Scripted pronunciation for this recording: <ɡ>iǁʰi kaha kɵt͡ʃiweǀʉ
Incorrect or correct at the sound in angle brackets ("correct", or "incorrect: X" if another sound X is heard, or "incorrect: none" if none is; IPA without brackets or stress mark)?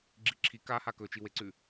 incorrect: ɡ͡ǁ